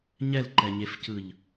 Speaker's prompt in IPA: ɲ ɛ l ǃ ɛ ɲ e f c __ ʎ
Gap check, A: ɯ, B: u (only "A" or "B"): A